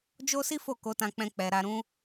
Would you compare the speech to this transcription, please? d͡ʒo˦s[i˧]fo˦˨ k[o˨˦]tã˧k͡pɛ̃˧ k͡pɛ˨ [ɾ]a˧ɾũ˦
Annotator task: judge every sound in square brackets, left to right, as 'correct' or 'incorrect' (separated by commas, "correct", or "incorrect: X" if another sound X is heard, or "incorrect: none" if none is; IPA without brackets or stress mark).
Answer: incorrect: i˦, correct, correct